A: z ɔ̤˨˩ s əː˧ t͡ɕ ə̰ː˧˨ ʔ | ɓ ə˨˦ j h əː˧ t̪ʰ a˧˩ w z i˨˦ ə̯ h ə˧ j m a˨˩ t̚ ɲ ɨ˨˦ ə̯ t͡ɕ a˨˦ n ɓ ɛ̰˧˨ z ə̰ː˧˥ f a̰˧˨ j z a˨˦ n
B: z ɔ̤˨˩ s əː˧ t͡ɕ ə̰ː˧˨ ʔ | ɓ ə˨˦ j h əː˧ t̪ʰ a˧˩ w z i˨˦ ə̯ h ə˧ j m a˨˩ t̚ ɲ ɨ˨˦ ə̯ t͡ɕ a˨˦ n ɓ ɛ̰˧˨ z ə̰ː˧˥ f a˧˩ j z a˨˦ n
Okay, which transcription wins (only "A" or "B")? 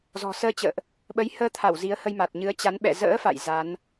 A